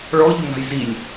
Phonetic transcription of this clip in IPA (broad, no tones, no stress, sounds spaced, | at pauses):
ɭ ɔ ʎ ɵ ŋ a̤ j z i lʲ